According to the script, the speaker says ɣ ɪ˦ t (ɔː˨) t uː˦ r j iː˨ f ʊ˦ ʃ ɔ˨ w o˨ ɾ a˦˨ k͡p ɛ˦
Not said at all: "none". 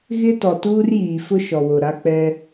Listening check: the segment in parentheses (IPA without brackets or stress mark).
ɔ˨